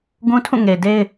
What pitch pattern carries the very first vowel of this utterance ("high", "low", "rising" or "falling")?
high